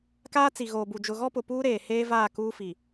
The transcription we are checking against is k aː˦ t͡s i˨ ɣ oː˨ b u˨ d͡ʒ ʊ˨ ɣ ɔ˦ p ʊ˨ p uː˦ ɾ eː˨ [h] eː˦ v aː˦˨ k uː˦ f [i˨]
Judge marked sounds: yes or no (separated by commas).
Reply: yes, yes